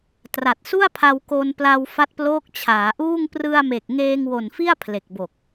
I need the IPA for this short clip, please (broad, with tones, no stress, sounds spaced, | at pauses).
t r a˨˩ t̚ s u˥˩ a̯ pʰ a˧ w k o˧ n p l a˧ w f a˦˥ t̚ p l oː˦˥ k̚ t͡ɕʰ aː˩˦ ʔ uː˥˩ ŋ p r ɯ˧ a̯ m e˨˩ k̚ ŋ eː˧ ŋ w o˨˩ n f i˥˩ a̯ pʰ l e˨˩ k̚ b o˨˩ k̚